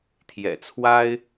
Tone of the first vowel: low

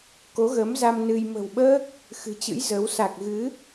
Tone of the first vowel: rising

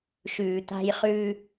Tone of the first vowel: low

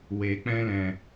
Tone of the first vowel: low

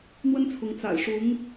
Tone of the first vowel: high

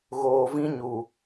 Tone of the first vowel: low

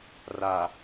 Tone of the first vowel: low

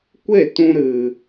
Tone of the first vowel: falling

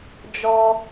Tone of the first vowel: high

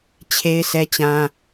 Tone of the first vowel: high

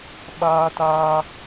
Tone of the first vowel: high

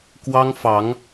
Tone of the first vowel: high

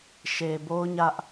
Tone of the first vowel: low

